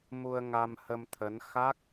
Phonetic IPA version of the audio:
mu˧ə̯ŋa˧mhə˧mt̪ʰə˨˦n xa˦˥k̚

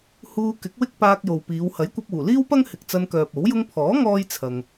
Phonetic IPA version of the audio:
huː˧kɪ˨˥k̚wɪ˥k̚ paː˧k̚jo˨w piː˨˧w hɐ˨˥jkʷɐ˧p̚ uː˨˩liː˥wpɐ˥ŋ hɪ˨k̚t͡sɐ˧nkœː˨p̚ o˨˥w jʊ˧ŋpʰɔː˨˥ ŋɔː˥jt͡sʰɐ˨ŋ

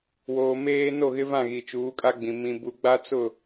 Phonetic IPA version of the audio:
woː˨ meː˦ no˦˨ɣɪ˦vã˦˨ ɣi˨t͡ʃuː˨˦kʼa˦ɡ͡bĩ˨ mĩ˨bu˨ɡ͡ba˦ t͡sʊ˦˨

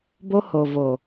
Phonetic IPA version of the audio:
bo˦ho˨vo˨

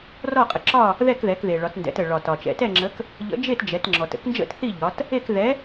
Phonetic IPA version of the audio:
rɔ˥˨qʼə˩˧ ǁɒ˥˨ | ðɛ˥˨kðɛ˩˧kðe˩ ɭɒ˩˧tndɛ̰˩˧t ə˩ɭɒ˩ tɒ˩ t͡ʃɛ̰˩˧tɛ˥˨ ŋ͡ǁə˨˥k | ʎə̰˨˥d͡ʒe˥˨td͡ʒɛ˩˧t ŋ͡ǁɔ˩tə̰˨˥knd͡ʒə̰˥˨t θi˥˨ ʎɒ˩˧t | e˥˨k ðɛ˨˥

